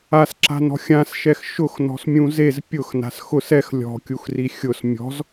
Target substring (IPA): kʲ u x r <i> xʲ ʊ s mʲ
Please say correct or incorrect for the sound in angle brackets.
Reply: correct